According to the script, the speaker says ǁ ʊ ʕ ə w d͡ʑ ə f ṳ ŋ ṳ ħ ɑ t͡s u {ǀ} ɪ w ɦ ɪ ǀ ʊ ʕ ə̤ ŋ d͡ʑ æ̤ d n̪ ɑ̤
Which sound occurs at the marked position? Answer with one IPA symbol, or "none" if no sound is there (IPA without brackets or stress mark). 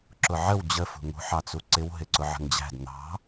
ǀ